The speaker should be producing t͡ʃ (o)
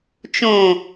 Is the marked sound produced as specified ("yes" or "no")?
no